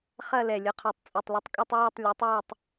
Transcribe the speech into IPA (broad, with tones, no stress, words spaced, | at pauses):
χɐ˦˨ lɛ˨˩lʲɵ˩˥qʰo˨˩tˤ t͡sʼɵ˨˩tˤlʊ˩˥tˤkʼɵ˦˨tˤ wa˦˨tˤ lʲa˩˥tˤwa˦˨tˤ